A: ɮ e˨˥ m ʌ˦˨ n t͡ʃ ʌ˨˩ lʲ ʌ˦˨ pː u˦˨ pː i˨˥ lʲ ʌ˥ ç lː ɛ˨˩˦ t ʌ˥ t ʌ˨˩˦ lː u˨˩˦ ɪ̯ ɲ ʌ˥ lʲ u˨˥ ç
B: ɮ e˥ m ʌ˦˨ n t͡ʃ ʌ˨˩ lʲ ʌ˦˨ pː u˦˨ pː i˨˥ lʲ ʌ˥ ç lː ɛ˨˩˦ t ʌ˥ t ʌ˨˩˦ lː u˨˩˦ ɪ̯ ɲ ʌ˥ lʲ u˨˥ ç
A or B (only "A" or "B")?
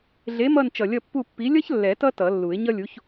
A